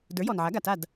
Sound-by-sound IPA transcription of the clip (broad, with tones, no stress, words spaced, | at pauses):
də˞˩˥jɔ˩nʕa˩˥ ɡa˩ta˥˩d